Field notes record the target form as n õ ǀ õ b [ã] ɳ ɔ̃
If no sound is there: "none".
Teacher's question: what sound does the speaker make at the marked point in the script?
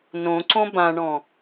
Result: ã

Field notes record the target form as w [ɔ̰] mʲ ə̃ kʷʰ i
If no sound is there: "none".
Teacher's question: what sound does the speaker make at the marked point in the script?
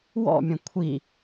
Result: ɔ̰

